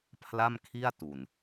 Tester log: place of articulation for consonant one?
labial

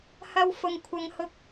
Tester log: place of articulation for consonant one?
glottal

